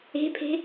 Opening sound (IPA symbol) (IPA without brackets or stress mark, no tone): e̤